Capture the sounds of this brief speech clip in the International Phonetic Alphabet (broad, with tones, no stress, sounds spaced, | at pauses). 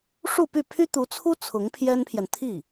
ʂ u˥˧ p y˥˩ pʰ y˥ t̪ u˧˥ t͡sʰ u˥ t͡sʰ ʊ˧˥ ŋ pʰ j ɛ˥ n pʰ j ɛ˨ n t̪ʰ i˥˩